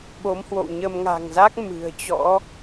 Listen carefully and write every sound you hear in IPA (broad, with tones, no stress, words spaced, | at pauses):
ɓo˨˦mhwo̰˧˨wɲə˧m ŋa̤ː˨˩ŋza˦˥k̚ mɨ̤˨˩ə̯t͡ɕɔ̰˧˥